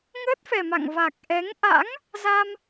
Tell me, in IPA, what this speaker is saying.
ŋəː˦˥t̚fɛ˨˩ma̰˧˨ŋva˨˩k̚ ʔɛ˨˦ŋ ʔa̰˧˥ŋ | za˧m

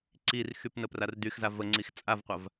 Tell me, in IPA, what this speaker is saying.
ǀirxyp nəprardyxza vəŋ͡ǀix t͡sʼavqʷav

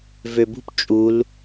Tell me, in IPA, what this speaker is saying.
vøbṳp t͡ʃʼul

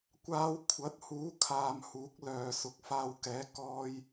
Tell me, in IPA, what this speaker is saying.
kʷaː˧w kʷʰɐ˨˥t̚ huː˨˥kʰaː˨m huː˨˥k̚lœː˨˧ sʊ˨˥k̚faː˧wkɛː˨˥ kɔː˧j

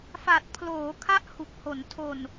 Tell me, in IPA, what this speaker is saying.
fa˨˩t̚pʰloː˩˦ kʰa˥˩ʔhu˨˩k̚ho˩˦n tʰo˨˩n

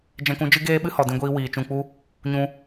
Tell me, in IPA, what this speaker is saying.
d͡ʒɛ̃˧kũ˨˦d͡ʒɨ˦ ɡeː˦ɓɨ˦hɔ˨ dĩ˧ɡʷiː˧ wiː˨t͡ʃũ˧k͡pu˦ | ɲũ˧

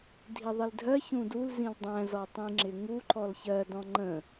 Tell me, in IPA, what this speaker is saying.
dʱiðˤildʱɜ çũdul zĩldˤæ̃ zɔtˤĩŋ͡ǁɪŋu ǃɔlçɜ dɔ̃ŋ͡ǃə̃

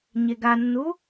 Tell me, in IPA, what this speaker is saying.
ɲeɡanːu

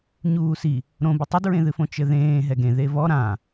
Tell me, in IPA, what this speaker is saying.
ɲuːsi | ɾõbɨ tˤɘdɹẽðɨfõ t͡ʃɘðẽː ɦɛɡẽ ðevɔ ɾã

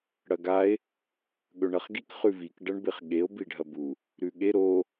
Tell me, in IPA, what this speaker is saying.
ɽɐɡae̯ | ɠɵɳɐχɡik χʉvik ɖɐɳbeχɠeo̯ biɖʱɐbu | ɾʉɠe ɾo

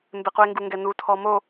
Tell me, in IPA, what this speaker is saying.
mbɪque̯ŋɡuŋɡɛ nutʰɔ mo

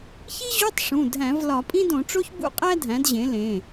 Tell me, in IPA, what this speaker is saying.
çi˥ ʑu˧˥˧tˤ ʂũ˩˧˩dʱæ̃˧˩˧v lɒ˧˩˧pʼĩ˥dõ˧˩˧ʈ͡ʂo˥ç bṵ˥qʼæ˥dʱæ̃˩˥d ʑẽ˩˥lẽ˩˧˩

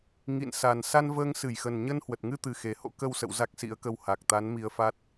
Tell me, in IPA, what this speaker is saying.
ŋḭ˧˨nsa˨˩n sa˧nvəː˧ŋsɨ˧˩jxə˨˩n ɲə˧nhwə˨˩t̚ŋɨ˧t̪ɨ˨˩ xe˨˩ho̰˧˥ kə˧wsə̰˧˨w za˦˥k̚sḭ˧˥ə̯kə˧w ha˨˩k̚t̪a˨˦n mi˧ə̯fa˦˥t̚

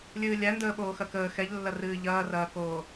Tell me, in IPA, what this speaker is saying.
lʲɨːlʲændəː ɓoːxɐkəː xɛʎlːɐ rɨːʎɐːrɐːkoː

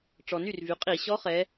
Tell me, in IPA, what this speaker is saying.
ʈ͡ʂɔ˩ny˥˩r vy˩˧qʼi˧˩˧ ɕɔ˧˥χɛ˩˧

